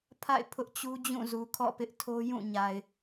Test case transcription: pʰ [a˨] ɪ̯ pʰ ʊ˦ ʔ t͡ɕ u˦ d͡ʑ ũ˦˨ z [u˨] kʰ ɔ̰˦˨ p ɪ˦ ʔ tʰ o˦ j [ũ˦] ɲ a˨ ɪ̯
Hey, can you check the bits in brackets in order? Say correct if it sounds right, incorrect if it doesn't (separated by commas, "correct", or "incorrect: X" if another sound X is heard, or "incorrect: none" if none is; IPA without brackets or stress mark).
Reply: incorrect: a̰˦˨, correct, incorrect: ũ˦˨